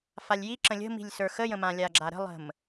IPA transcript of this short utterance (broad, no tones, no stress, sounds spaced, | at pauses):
f a lʲ j i ǁ ə̃ lʲ ə̤ m i̤ lʲ s ə˞ x ə j ə̃ m ã lʲ a ɡ͡ǁ a ɾ ə̤ lˠ ə̤ m